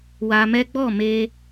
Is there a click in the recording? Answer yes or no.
no